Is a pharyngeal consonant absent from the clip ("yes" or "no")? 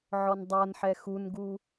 no